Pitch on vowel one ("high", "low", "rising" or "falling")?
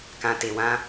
low